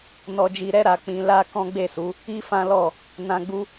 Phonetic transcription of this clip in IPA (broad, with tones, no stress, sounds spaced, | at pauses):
n ɔ˧ d͡ʒ i˧ ɾ ɛ˦ ɾ a˧ k͡p ĩ˧ l a˦ k ɔ̃˦ ɡ͡b e˦˨ s u˨˦ | i˦ f ã˦ l ɔ˦˨ | n ã˧ ɡ͡b u˦